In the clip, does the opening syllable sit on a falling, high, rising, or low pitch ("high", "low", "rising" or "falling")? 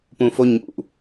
low